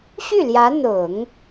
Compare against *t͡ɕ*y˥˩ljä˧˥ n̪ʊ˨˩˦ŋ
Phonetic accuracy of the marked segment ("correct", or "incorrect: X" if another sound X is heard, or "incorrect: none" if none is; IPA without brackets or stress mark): incorrect: ɕ